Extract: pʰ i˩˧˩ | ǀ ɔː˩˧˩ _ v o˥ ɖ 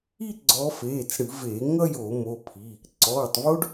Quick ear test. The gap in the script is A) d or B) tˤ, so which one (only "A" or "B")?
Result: B